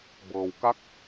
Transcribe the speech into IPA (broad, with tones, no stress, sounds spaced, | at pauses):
b ɤː˩ w k a˧˥ k̚